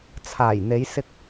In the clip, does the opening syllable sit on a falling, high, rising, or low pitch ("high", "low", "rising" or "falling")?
low